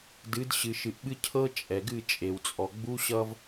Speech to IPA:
d ɨ˨˦ d ɕ ɨ˨ ʃ ɨ˨ ʔ ɓ ɨ˦ cʰ ɤ˦ t͡ʃʼ ɛ˨ ɡ ɨ˦˨ t͡ʃʼ e˨ w t͡sʼ ɔ˨ ɡ͡b u˦ ɕ ʌ˦ v

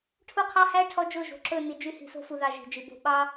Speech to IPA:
ʈʰ u˦ qʰ ɑ˦ h æ˦ ʈʰ ɔ˦ d͡ʒ o˦˨ ʒ o̤˨ ǁ ɵ˦˨ n i˨ d͡ʒ y˦ h i̤˨ s o̤˦ f u˨ ð ɑ˨ ʒ i̤˨ d͡ʒ i˨ b o̤˦ ɓ ɑ˦

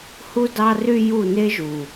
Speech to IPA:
h u˧ d ɑ˧ r y˧ j u˦˨ n e˦ ʒ u˨

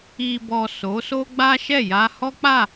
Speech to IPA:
i˨ b ɔ˨ s o˨˦ s o˦ ɡ͡b a˦ ʃ ɛ˦˨ j a˧ h ɔ˦ k͡p a˦˨

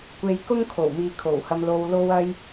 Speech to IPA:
kʷ e˧ j k ʊ˥ ŋ kʰ o˨˩ w m iː˨ kʰ o˨˩ w h ɐ˧ m l o˧ w l o˥ w ɐ˥ j

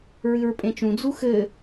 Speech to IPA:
ɹ ɨ ɹ pʼ ẽ t͡ʃ ũ d͡z u x ɘ

